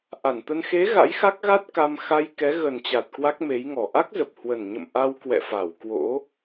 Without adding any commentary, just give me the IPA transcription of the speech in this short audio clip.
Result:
ʔ a˧˩ n t̪ ə˧ n x e˨˦ ɣ a̰˧˥ j x a˦˥ k̚ ɣ a˦˥ t̚ k a˧ m x a˧ j k ɛ˨˦ ɣ ə˨˩ n t͡ɕ a˨˩ t̚ k w a˦˥ k̚ m e˨˦ j ŋ ɔ˨˩ ʔ a˦˥ k̚ z ə˨˩ p̚ h w ə˨˩ n ɲ ə̰˧˨ m ʔ a˧ w k w ɛ̰˧˨ f a˧˩ w k w o̰˧˥

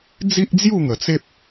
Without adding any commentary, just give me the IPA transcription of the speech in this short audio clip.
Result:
d͡z i˦ ʔ d͡z j u˥˧ ŋ ə˨˩ t͡s e˦ p̚

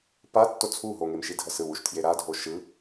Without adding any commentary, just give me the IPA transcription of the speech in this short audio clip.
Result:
p a tː o t͡sʰ u ɦ o ŋ e m ʃ i dʱ ʌ s ɯ w u ʃ tʰ j e ɾ a dʱ o ʃ ɯ

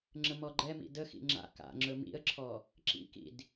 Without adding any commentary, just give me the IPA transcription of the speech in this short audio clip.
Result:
ŋ͡ǁ ə m ɔ ɡ͡ǃ ɛ m ḭ d ə x ḭ ŋ͡ǁ a̰ k a̰ ŋ͡ǁ ɵ m ḭ ə̯ ǁʰ ɔ | ǁ ḭ k ḭ d

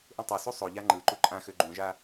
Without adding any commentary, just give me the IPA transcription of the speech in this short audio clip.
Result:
ʔ ũ tˤ ø s u sˤ o ʎ a ŋ͡ǃ ɯ ǃ u ǃʼ ã x ø ɡ͡ǃ ũ ʒ a

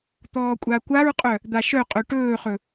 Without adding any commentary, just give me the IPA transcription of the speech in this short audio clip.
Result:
t̪ ɔː kʷʼ a kʷ a ɹ qʼ œ | d̪ a ʃ œ qʼ œ ʈ ɵː χ ɵ

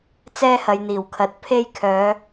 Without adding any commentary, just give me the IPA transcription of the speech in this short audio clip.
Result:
t͡s ɛː˧ h ɐ˨ j n̪ iː˨˩ w kʰ ɐ˨˥ t̚ pʰ e˧ j kʰ œː˨˧

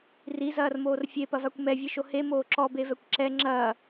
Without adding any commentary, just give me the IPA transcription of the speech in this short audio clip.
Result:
r i z ɐː r m oː r fʲ e p ɐ v a kʷ m ɛ vʲ ɨ ʃ o h e m oː ǁ ɔ b e v ɛ kʷ ǁ ɛ ŋ͡ǁ ɐː

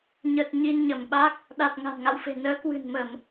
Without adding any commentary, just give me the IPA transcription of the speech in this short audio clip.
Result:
ɲ ə˨˩ t̚ ɲ i˧ n ɲ ə˧˩ m ɓ a˦˥ k̚ | ɗ a˨˩ t̚ ŋ a̤˨˩ n ŋ a̰˧˨ w f e̤˨˩ n əː˨˦ k w ɨ̤˨˩ n m ə˧˩˨ m

